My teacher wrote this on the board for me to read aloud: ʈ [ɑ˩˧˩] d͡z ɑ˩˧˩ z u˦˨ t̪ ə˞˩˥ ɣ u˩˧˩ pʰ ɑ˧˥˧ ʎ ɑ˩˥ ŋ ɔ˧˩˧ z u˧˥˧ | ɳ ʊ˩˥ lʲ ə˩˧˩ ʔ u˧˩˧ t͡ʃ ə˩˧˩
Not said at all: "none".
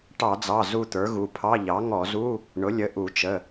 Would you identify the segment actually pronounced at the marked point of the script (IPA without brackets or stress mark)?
ɑ˧˩˧